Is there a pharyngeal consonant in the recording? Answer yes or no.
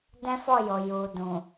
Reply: no